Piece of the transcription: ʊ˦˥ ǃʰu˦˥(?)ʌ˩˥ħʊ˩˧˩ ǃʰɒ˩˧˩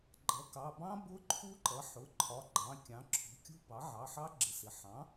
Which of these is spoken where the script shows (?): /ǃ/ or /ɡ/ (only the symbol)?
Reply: ǃ